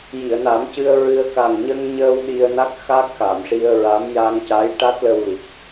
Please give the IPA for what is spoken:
ji˨˩˨ə̯na˨˩˦mcɨ˧ə̯ ɹɨ˧ə̯ ka˨˩ŋɲə˧ŋɲəː˧w ɗi˧ə̯na˦˥k̚ xa˦˥k̚xa˨˩˨mʂi˧ə̯ɹa˧˥m ja˧ŋca˧˥j ʈa˦˥t̚ lə˧wli˨˩k̚

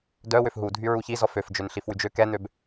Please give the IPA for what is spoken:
dœ wøfɦu dʱyɹuçi zɔføf d͡ʒønɬifwyd͡ʒø kɛn̪øb

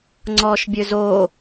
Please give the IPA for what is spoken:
ŋ͡ǀɔːʃbʲøzo

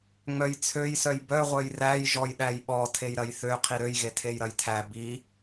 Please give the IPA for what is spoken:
ŋ͡mœjt͡sʰøjsœj bœʁʷœj ræj ʒɔjɗæjɓɔ tʰejɾɐjθø qʰiɾøjɣe tʰejɾɐjtʰæ bi

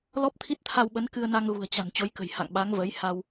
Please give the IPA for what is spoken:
lɔ˦˥p̚t̪ʰi˦˥t̚t̪ʰa˧wɓə˨˦n kɨ˧ə̯na˧ŋ ɣṳ˨˩ə̯t͡ɕa̤˨˩n t͡ɕo˨˦jkə̤˨˩j ha̰˧˨ŋɓa˨˦ŋvə˨˦j ha˧w

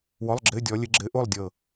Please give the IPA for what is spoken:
wɔ˧˥˧lˠɡ͡ǁɘ˧˥˧dʲɔ˨˦lʲɘ˨˦ ɡ͡ǁɘ˨˦ʔo˥˨lˠdʲɤ˧˩

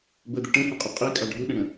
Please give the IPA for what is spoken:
bəd̪ə ʈə̃hɛ̃qʼʊ qʼikʼɑ ɖʱuɗə̃ɽə̃

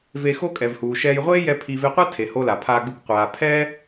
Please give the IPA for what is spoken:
ve˧xo˥kʼɛ˩vhuː˩ ʃɛː˧jʁʷeː˥jɛ˧ pʰi˧ ve˧qʷa˥ tʰe˩ ho˧la˩ pʰaː˧ɡ͡bɯ˧k qʷaː˩pʰɛː˥

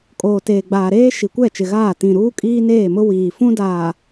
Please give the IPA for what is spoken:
kʼoː˨teː˨ɡ͡baː˨ɾeː˦ ʃi˨kʷɛ˦˨t͡ʃɪ˨ɣaː˦˨ tĩ˨ ɾuː˦kʼiː˦neː˦˨mʊ˦ wiː˨fũ˦daː˨

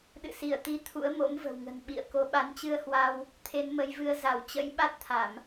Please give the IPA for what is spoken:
ɗɨ̰˧˨si˧˩ə̯t̪i˨˦ t̪ʰṵ˧˥ə̯mo̰˧˥mvə̤˨˩wŋə̤˨˩n ɓḭ˧˨ə̯ ko˨˦ɓa˨˦nt͡ɕɨ˧ə̯hwa˧w | t̪ʰe˨˦nmə˨˦jvɨ˧ə̯ za˧˩wt͡ɕə̰˧˥j ɓa˦˥t̚t̪ʰa˧˩˨m

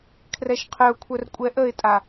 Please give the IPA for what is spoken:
kʰrɛʃqʰœʊ̯kʷʰœr kʷʼɛʔəɪ̯tʼa

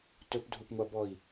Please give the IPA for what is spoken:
tɵpdʱupŋʷabɔi̯

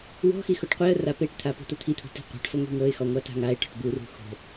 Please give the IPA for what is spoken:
wɔ̤xi xoʈqʷiə̯ra peʈt̪ʰa po̤t̪ot̪ʰit̪ʰo̤ ti̤qʷa̤ʈfɤ ŋʷi̤ŋɤɪ̯xɔ ŋʷata̤ŋaɪ̯ʈɔ̤ʈ burṳ xo̤

